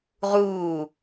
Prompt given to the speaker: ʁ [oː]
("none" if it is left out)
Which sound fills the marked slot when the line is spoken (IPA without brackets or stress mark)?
uː